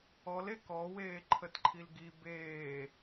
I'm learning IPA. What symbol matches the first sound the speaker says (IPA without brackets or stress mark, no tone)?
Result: ɔ